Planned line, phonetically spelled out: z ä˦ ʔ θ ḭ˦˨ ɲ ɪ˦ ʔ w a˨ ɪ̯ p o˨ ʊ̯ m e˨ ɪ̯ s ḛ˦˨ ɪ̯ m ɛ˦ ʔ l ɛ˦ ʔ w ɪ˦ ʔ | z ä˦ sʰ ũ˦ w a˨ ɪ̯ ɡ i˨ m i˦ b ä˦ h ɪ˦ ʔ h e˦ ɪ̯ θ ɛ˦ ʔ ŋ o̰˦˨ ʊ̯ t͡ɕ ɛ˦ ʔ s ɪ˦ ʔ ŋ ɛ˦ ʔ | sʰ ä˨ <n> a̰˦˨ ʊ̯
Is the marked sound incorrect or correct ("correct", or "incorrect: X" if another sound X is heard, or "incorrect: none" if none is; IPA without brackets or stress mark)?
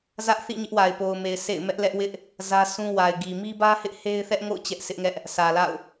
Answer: incorrect: l